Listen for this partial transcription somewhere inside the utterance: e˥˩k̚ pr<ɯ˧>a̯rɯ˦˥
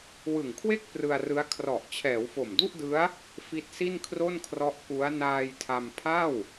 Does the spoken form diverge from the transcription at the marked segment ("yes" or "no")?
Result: no